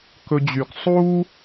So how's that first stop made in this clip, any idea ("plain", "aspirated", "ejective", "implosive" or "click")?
plain